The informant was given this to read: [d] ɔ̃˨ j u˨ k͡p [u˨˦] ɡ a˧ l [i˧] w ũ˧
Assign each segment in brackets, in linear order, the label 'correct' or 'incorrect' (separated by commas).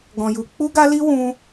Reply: incorrect, incorrect, correct